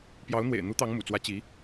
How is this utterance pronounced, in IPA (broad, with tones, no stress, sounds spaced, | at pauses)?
p j ɑ˧˥ ʊ̯ n̪ w ḛ˨˩ ɪ̯ n̪ u˧˥ t̪ ɑ˧˥ ŋ m ṵ˨˩ t͡s w ä˧˥ t͡ɕ i˧˥